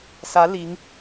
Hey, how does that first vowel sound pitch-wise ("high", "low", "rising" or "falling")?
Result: rising